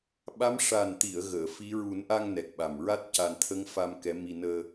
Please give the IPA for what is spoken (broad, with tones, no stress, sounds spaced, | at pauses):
ɓ a˧˥ m ʂ a˨˩ n t̪ i˨˩˨ ə̯ ɣ əː˨˩˨ f i˧˥ ɹ u˨˩˦ n ʔ a˧ ŋ n ɛ˨˩ k̚ ɓ a˨˩ m ɹ a˦˥ t̚ c a˨˩ n t̪ʰ ə˧˥ ŋ f a˧ m k ɛ˧˥ m i˧ n əː˧